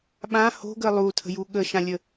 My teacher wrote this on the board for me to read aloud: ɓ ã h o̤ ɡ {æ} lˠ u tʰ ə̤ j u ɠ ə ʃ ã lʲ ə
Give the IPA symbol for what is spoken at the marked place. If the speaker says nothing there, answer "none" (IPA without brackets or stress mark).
ə